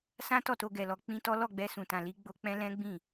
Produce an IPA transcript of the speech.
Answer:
s ã˦ t ɔ˦˨ t o˧ ɡ ɛ˨ l ɔ˧ k͡p ĩ˦ t ɔ˦ l ɔ˦˨ ɡ͡b ɛ˧ s ũ˨ t ã˨ l i˨˦ ɡ͡b o˧ k͡p ɛ̃˦ l ɛ̃˦ ɡ͡b ĩ˦˨

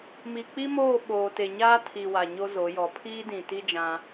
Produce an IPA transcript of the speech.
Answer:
m i˨ k͡p i˦ m oː˦˨ ɓ oː˨ t e˨ ɲ aː˦ tʰ i˨ w a˨ ɲ o˦ z o˨˦ j ɔ˨ pʰ iː˦ d ĩ˨ t i˦ d͡ʒ ã˦

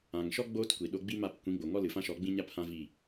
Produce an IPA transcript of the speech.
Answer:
ã˨ ŋ ʃ ɔ˦ ɡ͡b oː˦ t kʷ i˨ ɗ o˧ ɡ͡b i˦ m a˦˨ p kʷ ĩ˨˦ ɡ͡b o˨ ŋ ɔ˦ l ɨ˨ f ã˦ ʃ ɔ˨˦ ɡ͡b ĩ˦ ɲ a˦ p h ã˦ v i˦˨

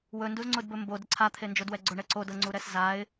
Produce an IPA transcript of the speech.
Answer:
w ɵ n d u z ŋ͡ǀ ʊ d b ɵ m b o d ə ǀʰ a t̪ʰ e n d͡ʒ o d w ɛ ɡ͡ǀ ʊ ɳ ɛ ǀ o d ɤ ŋ͡ǀ u ɾ ɛ s z a ɪ̯

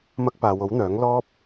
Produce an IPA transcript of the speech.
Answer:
m ɐ˧ k̚ p aː˨ w o˨˥ w n̪ œː˨˥ ŋ l ɔː˥ p̚

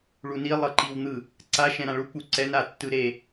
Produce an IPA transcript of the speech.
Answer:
ɭ u n i lˠ ɤ ǃ i w n̪ ɯ | ǀ a ʃ ɛ̃ ɾ ã ɭ u k͡p u ǀ ɛ n a tː ɯ ɾ e

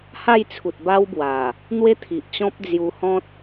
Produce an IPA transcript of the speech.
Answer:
h a˥˧ j t͡sʰ u˨ t̚ b a˦ w b w a˨˩ | n̪ w e˦ t̪ʰ i˨ ʔ t͡ɕ ɔ̃˦ p̚ d͡z j u˧ h ɔ̃˦ t̚

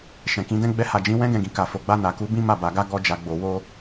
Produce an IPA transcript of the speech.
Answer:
ʃ ɛ̃˨ k ĩ˨˦ d ɛ̃˧ ɡ͡b ɛ˧ h a˨ d͡ʒ ĩ˨˦ w ɛ̃˦ ɡ ɛ̃˧ ɡ ĩ˨ k a˨ f o˨ ɡ͡b a˧ n a˨ k u˨˦ b ĩ˦ m a˦˨ b a˧ ɡ a˦ ɡ ɔ˦ d͡ʒ a˧ ɡ͡b o˧ w o˦

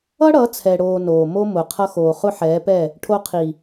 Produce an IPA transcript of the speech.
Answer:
ʌ˦ ɽ ʌ˨˦ t͡sʰ ɛ˨ ɽ oː˨ n oː˨ m o˦ m ʊ˨ qʰ ʌ˧ x oː˨ χ ʊ˦ ħ ɛː˨˦ p ɛ˦˨ | ʈʰ o˧ qʰ i˨

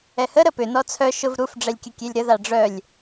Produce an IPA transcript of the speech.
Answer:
ɛ h ə ɾ ə p ʏ n ɔ t͡sʰ œ ʃ ʊ v ɾ u f ɖ͡ʐ ɛ lʲ kʲ ə kʲ e lʲ ɾ ə ð a ɖ͡ʐ œ lʲ

